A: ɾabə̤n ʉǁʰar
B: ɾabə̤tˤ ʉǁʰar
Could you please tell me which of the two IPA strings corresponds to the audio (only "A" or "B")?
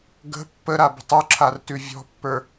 B